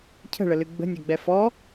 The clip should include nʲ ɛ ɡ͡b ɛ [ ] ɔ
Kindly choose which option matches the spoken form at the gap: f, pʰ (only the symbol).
f